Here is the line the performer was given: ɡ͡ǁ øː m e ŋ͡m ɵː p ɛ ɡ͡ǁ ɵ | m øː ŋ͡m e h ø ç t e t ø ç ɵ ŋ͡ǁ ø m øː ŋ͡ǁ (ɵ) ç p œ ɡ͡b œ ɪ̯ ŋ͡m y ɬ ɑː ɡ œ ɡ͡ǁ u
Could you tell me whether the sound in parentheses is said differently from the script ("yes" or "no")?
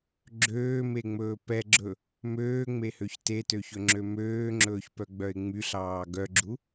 yes